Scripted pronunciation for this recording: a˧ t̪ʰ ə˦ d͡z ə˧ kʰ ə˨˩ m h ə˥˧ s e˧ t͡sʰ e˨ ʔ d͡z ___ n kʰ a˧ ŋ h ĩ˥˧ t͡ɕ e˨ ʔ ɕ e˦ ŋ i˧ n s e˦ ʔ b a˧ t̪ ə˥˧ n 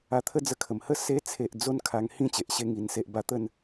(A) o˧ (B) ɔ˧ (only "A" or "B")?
A